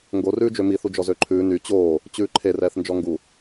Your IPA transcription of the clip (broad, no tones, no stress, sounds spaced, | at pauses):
ŋ ɡ o r ʉː d͡ʒ ø m i θ u d͡ʒ ɔ z ø ǃʰ ʉː n y t͡ɕ oː | t͡ɕ ʉː ǃʰ e r ɛː θ n d͡ʒ ɔ ŋ ɡ u